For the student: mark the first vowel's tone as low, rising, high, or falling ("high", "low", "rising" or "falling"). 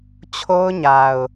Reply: high